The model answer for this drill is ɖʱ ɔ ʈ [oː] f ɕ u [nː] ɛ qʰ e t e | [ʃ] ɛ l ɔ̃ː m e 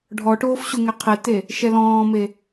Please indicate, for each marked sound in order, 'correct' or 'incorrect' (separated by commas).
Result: correct, incorrect, correct